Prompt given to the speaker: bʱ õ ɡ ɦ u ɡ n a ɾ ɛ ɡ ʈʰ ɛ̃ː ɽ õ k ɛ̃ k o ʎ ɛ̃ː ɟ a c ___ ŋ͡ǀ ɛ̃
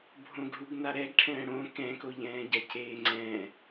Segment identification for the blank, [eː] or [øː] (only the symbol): eː